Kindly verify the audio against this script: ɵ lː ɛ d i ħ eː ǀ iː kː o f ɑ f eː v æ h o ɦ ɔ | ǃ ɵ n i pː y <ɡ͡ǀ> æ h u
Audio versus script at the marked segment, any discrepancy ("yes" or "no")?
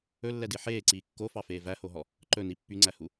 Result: yes